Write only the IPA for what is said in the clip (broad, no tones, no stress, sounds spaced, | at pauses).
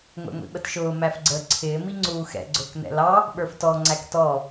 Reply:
ŋʷ ɛ̰ ŋʷ ḭ ɓ ə t ʃ ʊː m æ f ɡ͡ǀ əː ǀʰ ɪː m i ŋ͡ǀ uː x ɛ̰ ɡ͡ǀ ʊː k n ɛ̰ l ɑ | ɓ ə˞ f t ɔ ŋ͡ǀ æ k t ɔ